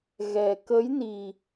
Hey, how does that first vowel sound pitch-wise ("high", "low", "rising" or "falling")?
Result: low